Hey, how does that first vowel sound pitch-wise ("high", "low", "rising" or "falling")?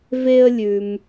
high